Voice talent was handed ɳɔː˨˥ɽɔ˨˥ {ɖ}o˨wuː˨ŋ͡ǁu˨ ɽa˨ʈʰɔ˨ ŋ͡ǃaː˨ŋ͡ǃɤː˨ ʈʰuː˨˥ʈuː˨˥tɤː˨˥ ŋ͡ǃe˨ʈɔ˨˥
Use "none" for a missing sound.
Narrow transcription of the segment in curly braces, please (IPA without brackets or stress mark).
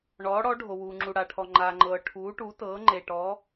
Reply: ɖʱ